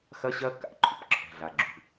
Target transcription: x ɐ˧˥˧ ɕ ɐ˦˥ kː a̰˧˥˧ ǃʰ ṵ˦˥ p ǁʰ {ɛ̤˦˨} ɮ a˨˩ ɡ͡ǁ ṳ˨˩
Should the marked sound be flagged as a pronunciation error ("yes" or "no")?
yes